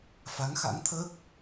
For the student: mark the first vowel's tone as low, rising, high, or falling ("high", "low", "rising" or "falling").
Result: rising